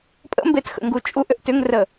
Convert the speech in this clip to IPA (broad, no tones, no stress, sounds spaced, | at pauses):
pʼ ə̰ m b e t x ə̰ ŋ ɡ u t͡ʃʼ u ʔ ʏ ʔ t ʏ ŋ r ə